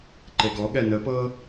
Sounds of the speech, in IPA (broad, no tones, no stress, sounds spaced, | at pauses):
ǃ e ɡ ɔ ɠ ɛ n ə p ɤ